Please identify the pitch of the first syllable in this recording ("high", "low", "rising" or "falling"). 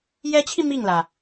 rising